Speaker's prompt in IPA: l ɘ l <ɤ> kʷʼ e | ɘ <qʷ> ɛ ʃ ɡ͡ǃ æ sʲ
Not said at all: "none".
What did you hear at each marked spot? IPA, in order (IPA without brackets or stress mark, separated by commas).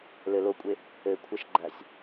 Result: o, kʷʰ